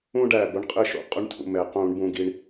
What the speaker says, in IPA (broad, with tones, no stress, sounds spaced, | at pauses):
ũ˧ ɖ æ˨˩ b ʊ˧ ɳ qʼ ɘ˥˩ ʃ o̰˥˩ qʼ ʊ˦˥ ɳ tʰ ṵ˨˩ m ɛ˧˩˧ q ũ˧˩˧ ɳ b ũ˧ ɡ i˧ ɳ